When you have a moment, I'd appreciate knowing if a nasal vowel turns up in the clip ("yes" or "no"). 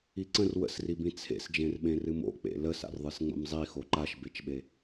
yes